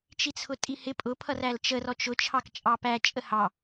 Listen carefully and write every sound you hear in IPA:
t͡ʃ i t͡sʰ ʊ tʼ i h ɪ pʼ ʊ pʰ ʌ r æ l t͡ʃ ə r ɔ t͡ʃ ʊ t͡ʃʰ ɑ k t͡ʃʼ ɑ p æ t͡ʃʼ ə h ɑ

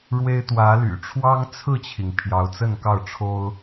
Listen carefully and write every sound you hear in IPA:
ɻ w e˦ ɪ̯ t̪ w ä˨˦ l y̰˨˩ ʈ͡ʂʰ w ɑ˦ ŋ t͡sʰ ɹ̩˥˨ t͡ɕʰ i˩ ŋ pʰ j ɑ˨˦ ʊ̯ t͡s ə˥˨ n k ɑ˥˨ ʊ̯ ʈ͡ʂʰ o˦ ʊ̯

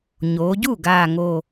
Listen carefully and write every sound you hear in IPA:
ɲ oː˩˧ ɟ u˥˩ ɡ aː˨˩ ŋ o˨˩

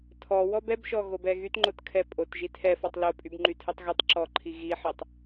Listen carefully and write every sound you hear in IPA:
tʰ ɔ w ɔ b ɛ b ʃ ɔ ɣ o b ɛ ɣ y t ŋ͡ǃ o t kʰ ɛ pʼ o t ʒ i tʰ ɛ f ɔ tˤ l o pʼ y b ŋ͡ǃ y tʰ ɨ tˤ ɣ ɵ tˤ ǁ ɔ ǃʰ i ɣ i ħ ɨ tˤ

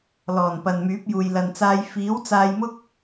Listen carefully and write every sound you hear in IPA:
l ɔː˨˩ n p ɐ˨ n m yː˨˥ p̚ j uː˨ j l ɐ˨ n t͡s aː˧ j f iː˨˥ w t͡s aː˧ j m ʊ˥ k̚

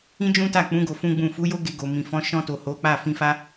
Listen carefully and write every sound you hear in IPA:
ĩ˦ d͡ʒ ũ˦ t a˦˨ k͡p ũ˨˦ ɡ o˧ f ũ˦ ɡ͡b ũ˦˨ f u˨˦ j o˦ ɡ e˧ ɡ o˨ m ĩ˨ f ɔ̃˨˦ ʃ ɔ̃˧ t o˨ h o˨˦ k͡p a˦˨ f ĩ˧ f a˦

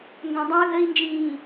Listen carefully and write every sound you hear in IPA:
ŋ ɡ œ̃ dˤ ĩ u̯ ɣ ə i̯ n d͡ʒ ĩː

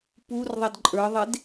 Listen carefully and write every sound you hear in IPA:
p u r ðˤ ɛ d ǃʼ ə˞ ðˤ e d

